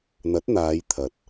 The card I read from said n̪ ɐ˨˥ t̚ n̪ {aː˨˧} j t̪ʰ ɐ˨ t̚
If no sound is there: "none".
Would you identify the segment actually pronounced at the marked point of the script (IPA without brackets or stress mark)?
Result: aː˨˧